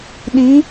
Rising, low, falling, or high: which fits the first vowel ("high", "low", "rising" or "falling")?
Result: rising